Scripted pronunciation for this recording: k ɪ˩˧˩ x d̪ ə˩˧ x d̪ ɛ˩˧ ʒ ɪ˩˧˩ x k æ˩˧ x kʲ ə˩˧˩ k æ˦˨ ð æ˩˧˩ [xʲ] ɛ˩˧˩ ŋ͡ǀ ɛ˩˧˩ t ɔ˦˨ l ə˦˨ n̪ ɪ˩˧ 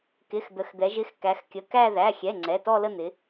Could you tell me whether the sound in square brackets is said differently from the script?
no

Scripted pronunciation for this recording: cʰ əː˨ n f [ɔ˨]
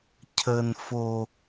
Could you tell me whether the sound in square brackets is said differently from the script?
yes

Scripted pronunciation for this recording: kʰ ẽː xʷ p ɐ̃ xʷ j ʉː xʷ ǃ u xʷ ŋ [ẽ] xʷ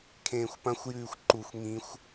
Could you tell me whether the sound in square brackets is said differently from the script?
yes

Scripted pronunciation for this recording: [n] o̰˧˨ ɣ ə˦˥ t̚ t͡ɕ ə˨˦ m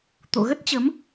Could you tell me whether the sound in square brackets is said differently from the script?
yes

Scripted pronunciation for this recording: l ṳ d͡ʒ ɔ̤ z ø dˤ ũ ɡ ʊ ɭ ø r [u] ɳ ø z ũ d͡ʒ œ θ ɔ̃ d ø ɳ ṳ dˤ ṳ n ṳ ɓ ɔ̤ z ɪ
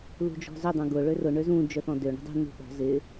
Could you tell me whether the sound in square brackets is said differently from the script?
yes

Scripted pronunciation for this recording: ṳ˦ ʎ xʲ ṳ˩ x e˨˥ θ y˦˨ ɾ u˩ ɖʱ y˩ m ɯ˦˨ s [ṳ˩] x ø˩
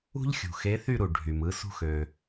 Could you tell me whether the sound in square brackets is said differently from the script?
yes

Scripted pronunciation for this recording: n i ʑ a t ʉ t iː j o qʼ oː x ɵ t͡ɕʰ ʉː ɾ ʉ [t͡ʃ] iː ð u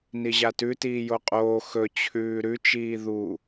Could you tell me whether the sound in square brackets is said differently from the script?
no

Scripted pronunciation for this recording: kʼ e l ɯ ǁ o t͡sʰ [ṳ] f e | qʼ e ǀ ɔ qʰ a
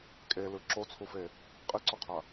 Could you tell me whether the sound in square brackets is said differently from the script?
yes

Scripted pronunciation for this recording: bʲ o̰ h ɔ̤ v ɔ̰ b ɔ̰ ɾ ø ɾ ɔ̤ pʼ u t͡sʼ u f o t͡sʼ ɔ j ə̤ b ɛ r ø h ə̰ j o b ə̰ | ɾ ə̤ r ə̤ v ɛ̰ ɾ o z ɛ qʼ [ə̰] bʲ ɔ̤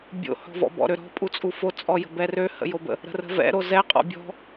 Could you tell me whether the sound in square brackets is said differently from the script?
yes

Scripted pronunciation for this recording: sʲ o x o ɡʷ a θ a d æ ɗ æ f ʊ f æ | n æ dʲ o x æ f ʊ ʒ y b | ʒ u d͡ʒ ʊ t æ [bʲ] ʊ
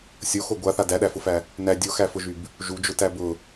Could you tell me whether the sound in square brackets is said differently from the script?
yes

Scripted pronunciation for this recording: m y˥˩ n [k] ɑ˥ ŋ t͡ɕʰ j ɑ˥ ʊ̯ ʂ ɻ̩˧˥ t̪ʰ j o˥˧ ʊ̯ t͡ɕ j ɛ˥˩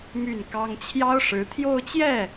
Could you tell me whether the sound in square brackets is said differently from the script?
no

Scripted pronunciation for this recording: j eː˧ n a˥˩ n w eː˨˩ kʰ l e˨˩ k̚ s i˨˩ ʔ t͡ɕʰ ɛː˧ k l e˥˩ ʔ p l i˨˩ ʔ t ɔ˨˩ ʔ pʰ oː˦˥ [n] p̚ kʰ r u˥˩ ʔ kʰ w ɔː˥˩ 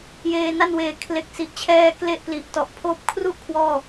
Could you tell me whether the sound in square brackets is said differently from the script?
yes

